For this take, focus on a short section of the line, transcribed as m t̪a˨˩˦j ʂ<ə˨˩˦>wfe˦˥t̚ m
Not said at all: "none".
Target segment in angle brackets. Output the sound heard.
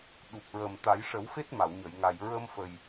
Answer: ə˨˩˦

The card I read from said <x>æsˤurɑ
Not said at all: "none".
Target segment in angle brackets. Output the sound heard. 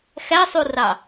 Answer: x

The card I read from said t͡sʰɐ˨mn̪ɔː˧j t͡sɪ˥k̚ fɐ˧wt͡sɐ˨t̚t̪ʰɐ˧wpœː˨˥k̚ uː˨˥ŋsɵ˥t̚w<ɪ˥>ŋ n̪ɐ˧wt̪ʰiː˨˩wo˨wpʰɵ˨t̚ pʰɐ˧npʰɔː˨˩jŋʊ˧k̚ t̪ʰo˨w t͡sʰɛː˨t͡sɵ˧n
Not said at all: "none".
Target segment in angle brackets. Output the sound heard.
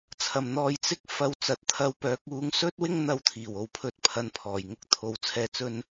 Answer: ɪ˥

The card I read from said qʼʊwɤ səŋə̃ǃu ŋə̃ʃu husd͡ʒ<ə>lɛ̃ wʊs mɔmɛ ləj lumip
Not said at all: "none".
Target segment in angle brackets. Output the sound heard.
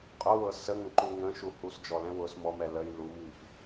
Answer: ɔ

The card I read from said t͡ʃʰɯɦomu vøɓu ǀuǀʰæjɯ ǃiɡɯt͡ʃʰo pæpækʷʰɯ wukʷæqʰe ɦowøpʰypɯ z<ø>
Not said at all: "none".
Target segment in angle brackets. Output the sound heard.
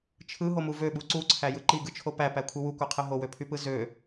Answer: ø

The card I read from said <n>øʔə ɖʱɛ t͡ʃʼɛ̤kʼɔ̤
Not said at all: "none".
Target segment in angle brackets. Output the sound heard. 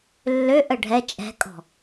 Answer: lː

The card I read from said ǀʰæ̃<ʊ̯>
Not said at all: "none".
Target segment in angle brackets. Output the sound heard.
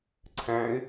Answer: ɪ̯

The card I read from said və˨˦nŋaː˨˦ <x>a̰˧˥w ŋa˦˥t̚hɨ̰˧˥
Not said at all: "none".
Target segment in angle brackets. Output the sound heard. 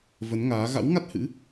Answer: ɣ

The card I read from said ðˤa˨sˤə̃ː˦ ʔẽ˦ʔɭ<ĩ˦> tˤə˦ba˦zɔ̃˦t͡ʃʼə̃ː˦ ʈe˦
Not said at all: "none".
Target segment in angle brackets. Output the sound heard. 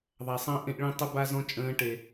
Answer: ĩ˦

